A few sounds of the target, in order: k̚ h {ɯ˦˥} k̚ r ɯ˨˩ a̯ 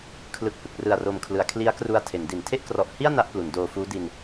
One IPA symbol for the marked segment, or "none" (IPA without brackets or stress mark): ɯ˨˩